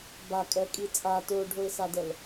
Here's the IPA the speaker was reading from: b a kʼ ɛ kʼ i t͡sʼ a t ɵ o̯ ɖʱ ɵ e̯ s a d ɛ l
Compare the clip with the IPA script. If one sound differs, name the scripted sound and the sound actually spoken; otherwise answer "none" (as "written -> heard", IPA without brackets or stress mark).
none